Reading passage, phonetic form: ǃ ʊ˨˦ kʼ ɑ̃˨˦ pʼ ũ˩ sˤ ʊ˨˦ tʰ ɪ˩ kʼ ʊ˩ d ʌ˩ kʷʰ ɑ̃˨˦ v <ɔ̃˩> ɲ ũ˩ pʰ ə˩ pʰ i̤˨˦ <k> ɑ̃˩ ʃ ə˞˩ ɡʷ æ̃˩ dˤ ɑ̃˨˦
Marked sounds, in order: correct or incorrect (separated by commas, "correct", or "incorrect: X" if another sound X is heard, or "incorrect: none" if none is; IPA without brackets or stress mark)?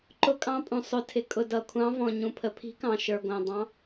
correct, correct